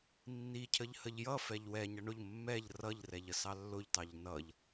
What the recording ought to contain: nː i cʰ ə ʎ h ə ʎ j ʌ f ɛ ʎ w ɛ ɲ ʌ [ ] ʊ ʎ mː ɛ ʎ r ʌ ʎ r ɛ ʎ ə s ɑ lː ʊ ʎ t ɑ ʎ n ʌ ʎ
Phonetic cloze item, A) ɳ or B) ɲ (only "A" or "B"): A